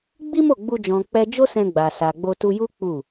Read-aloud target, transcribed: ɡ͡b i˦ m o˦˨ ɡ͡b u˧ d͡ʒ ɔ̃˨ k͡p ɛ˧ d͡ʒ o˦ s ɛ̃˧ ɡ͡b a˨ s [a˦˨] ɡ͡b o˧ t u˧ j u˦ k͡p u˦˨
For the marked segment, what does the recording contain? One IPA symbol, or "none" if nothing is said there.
a˨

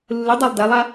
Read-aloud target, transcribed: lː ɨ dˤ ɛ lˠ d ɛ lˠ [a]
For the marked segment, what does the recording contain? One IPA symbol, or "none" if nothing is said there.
a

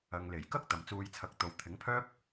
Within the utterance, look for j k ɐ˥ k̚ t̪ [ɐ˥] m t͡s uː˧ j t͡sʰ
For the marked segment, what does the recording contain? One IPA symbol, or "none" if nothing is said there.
ɐ˨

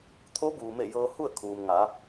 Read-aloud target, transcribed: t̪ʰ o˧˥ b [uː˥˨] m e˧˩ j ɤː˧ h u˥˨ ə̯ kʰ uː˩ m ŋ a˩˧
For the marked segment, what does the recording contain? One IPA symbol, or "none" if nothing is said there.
uː˩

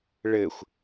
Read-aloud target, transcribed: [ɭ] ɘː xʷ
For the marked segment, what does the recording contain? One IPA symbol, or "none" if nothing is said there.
ɭ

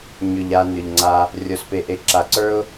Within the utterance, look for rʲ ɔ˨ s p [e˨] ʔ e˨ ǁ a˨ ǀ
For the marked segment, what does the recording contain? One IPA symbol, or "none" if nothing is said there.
e˨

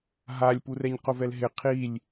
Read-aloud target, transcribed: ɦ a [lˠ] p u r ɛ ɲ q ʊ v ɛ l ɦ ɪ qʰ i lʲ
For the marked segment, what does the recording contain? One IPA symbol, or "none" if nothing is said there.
lʲ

